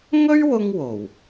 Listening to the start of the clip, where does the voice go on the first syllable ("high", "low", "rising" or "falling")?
high